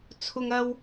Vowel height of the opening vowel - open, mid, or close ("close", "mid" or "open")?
close